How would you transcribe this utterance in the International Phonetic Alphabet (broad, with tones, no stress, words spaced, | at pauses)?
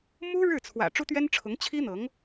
mu˥ɻɻ̩˥˩ t͡sʰwä̰˨˩ ʈ͡ʂu˥t̪ɥɛ˥nʈ͡ʂʰʊ˧˥ŋ t͡ɕʰi˥n̪ɤ˧˥ŋ